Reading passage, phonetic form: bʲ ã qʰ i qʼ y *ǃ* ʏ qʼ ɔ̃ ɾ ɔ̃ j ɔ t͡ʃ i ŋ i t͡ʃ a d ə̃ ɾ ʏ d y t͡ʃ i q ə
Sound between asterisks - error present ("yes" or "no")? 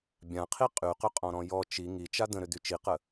yes